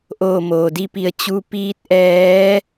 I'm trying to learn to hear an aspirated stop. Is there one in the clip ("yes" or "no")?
no